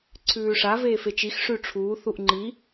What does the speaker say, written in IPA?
ǀʰ ʉː ʂ a v eː f e t͡ʃ i x ʂ ʉ ʈ͡ʂʰ uː θ u ʔ ŋ͡ǃ i

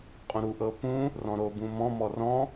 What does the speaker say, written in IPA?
qʼ õ ɾ u ʔ ɤ p ũ | r ɔ̃ ɾ o b ũ m ɔ̃ m ɔ r ɔ̃

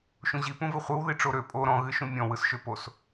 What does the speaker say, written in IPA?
ʃ ũ ʑ i p ũ v ɨ χʷ ɯ w ð i ʈ͡ʂ o ɾ ø pʼ o ɾ ɔ̃ ɣ ɨ ʃ ũ mʲ ɔ̃ w ɯ s ʃ ø p o s

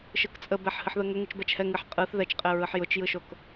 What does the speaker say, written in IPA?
ʃ ɯ k t͡sʼ ə b ɛ ħ h ɨ ħ ð ə ŋ ə ŋ ɯ t͡ʃ b ɛ t͡ʃ h ɛ ŋ ɨ ħ qʼ ɯ θ ð ɛ t͡ʃ qʼ ɛ ɹ ɯ ħ j ʊ t͡ʃ j ɯ ʃ o k

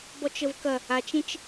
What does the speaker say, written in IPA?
b ɔ t͡ʃ ə v k ɐ | a t͡ʃ ẽ t͡ʃ

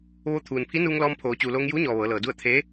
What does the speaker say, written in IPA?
ʋ o˧ t̪ʰ uː˩ n pʰ i˧˥ n uː˧ ŋ l ɔː˧ m pʰ oː˩˧ t͡ɕ uː˩ l oː˧ ŋ j uː˧˥ ɲ ɔː˩ ʋ ɤː˩˧ l ɤː˩ d u˥˨ ə̯ t̪ʰ eː˧˥

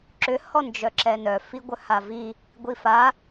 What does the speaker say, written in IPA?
ǁ ʏ h ɔ n d͡ʒ œ ǁ ɛ n œ f i ɡʷ œ h a v i | ɡʷ i f a

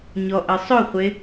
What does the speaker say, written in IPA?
ɲ ɔ ʔ ɘ sˤ ɵ χʷ e

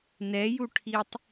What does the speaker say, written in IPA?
n ɛ j u ʈʰ i tˤ

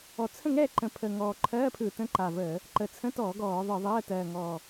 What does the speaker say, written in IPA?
ɔ˨˩ t͡sʰ ə̃˥˨ ŋ ɛ˥˨ ǃ ə̃˨˩ pʰ əː˨˩ ŋ ɔː˨˩ ǃʰ ɜː˧˥˧ pʰ ɯ˧˩˧ t ə̃˧˥˧ ǃ a˨˩ v əː˧˩˧ | ǃ ə˨˩ t͡sʰ ə̃˧˥˧ t ɔː˧˩˧ ɡ ɔː˧˩˧ ðˤ ɯ˧˩˧ ðˤ ɜː˧˥˧ t ɜː˨˩ ŋ ɔː˨˩

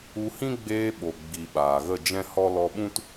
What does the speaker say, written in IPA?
u˧ h ĩ˦ ɡ͡b eː˧ ɓ o˨ ɡ͡b i˨ ɓ aː˨ ɣ ə˦˨ d͡ʒ ɛ̃˦ h ɔ˦ l ɔ˧ ɓ ũ˦ t

